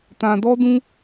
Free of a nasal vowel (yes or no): no